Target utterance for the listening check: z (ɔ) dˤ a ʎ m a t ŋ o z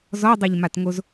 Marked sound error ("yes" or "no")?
no